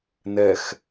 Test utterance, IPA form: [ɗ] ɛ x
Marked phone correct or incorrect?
incorrect